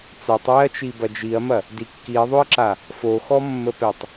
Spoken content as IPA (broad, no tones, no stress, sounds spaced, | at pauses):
t͡s a tˤ w ɛ ɐ̯ t͡ʃ i b ɐ d͡ʒ i ɐ̯ m ɐ | d i kː i ɐ̯ ðˤ o ɐ̯ ǁ a | f o x ɔ mː ə p ɛ tˤ